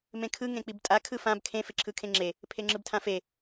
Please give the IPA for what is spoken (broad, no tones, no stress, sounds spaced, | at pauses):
m ẽ kʰ ɯ ŋ ẽ k͡p i b tʼ a kʰ ɯ f ã b kʰ ẽ f e ǁʰ ɯ kʰ ẽ ŋ͡ǁ e | pʰ e ŋ͡ǁ ɯ b tʰ ã f e